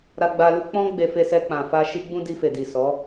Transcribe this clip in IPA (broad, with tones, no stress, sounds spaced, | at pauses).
ɾ a˧ ɡ͡b a˧ l u˦ k͡p ɔ̃˦ ɡ͡b e˧ f e˧ s ɛ˧ k͡p ã˨ f a˧ ʃ i˦ ɡ͡b ũ˦ d i˧ f e˨ d i˨ s ɔ˨˦